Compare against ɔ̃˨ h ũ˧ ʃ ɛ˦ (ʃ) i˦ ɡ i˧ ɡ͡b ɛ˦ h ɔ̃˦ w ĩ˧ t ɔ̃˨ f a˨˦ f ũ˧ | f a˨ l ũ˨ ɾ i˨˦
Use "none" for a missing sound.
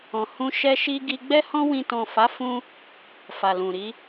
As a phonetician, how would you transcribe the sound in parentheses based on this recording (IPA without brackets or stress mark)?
ʃ